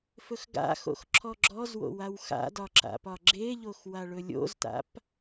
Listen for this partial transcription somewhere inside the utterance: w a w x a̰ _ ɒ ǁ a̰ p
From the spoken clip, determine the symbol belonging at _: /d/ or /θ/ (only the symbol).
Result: d